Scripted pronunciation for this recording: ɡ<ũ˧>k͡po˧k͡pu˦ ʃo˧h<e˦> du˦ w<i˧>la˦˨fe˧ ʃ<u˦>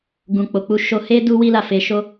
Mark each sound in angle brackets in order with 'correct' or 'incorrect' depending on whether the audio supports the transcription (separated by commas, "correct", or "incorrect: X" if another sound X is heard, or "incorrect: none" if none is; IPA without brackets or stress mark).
correct, correct, incorrect: i˦, incorrect: o˦